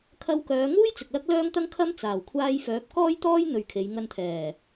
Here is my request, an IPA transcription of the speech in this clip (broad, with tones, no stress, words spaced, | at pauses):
kʰɐ˧wkœː˨˧ŋuː˥j t͡sɪ˨k̚lɐ˥k̚lœː˥ŋt̪ɐ˥ŋ kʰɐ˥m t͡saː˨˩wkʷʰaː˧jfœː˨˥p̚ kɔː˥jt̪ɔː˥j n̪ɵ˧ɥkʰe˨˧j ŋɐ˧nt̪ʰɛː˨˩